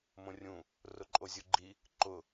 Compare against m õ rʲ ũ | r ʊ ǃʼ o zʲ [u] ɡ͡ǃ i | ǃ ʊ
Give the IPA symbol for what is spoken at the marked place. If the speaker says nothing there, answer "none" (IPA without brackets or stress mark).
u